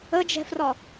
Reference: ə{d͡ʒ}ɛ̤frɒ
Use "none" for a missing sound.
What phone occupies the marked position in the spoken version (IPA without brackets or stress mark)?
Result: d͡ʒ